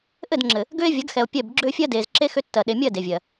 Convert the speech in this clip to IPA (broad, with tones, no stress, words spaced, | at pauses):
ʔɘ˦˨dŋ͡ǁɘ˨ | ɡʏː˦e̯vʲɐ˨˦ɡxɛ˨o̯ pʲɛ˦˨b ɡ͡ǁʏː˦fʲɜ˦deː˨z ǁe˦ xʏ˦tːɜ˨ ɗe˨mʲɜ˦˨ de˨vʲɜ˨